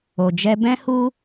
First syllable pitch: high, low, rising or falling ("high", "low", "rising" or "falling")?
low